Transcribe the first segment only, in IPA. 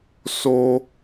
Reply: s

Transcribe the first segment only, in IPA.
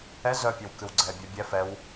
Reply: ɛ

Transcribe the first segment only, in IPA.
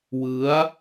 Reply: w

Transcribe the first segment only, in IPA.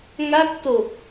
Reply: ŋ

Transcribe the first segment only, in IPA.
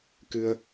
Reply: k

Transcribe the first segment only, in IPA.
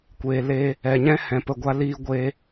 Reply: kʷ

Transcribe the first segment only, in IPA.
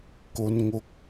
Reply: k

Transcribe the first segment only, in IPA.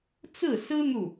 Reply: t͡s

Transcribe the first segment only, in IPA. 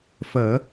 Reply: f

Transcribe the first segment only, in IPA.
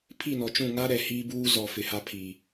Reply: pʰ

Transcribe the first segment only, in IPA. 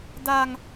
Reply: d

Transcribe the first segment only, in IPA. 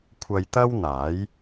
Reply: kʷʰ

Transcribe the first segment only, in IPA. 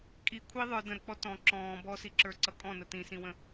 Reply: kʼ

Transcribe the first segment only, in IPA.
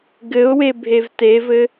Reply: ɡ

